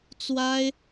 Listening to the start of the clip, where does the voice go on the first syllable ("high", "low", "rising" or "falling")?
high